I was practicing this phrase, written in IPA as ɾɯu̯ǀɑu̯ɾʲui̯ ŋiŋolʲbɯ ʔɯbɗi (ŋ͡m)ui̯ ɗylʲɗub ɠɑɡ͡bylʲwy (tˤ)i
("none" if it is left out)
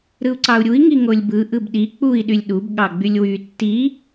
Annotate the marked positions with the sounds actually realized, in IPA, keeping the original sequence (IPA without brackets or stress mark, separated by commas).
k͡p, tː